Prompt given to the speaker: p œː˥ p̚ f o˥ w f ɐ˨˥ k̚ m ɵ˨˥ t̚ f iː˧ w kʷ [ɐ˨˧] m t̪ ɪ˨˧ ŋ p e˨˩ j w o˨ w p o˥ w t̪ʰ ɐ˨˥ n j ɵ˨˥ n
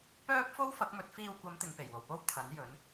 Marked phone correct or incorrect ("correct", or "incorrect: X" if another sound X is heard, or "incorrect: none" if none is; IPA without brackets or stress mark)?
correct